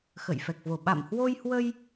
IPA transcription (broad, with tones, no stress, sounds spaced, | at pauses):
x ə̰˧˨ j f ɛ˨˩ k̚ v o˧˩ ɓ a̰˧˨ m h w o˧ j h w ə˧ j